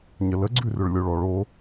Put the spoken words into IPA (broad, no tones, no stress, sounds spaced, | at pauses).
ɲ ə l ə ɡ͡ǀ ʉ r ʏ ɭ lʲ o ɭ ɔ ɭ o